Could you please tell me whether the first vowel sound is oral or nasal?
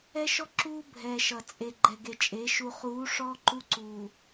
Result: oral